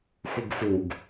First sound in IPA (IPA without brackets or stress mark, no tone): x